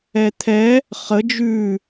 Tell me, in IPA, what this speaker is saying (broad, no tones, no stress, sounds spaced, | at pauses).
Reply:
ɛ t̪ʰ ɛ | χ ə d͡ʒ ʉ